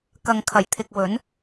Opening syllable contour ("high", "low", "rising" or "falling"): low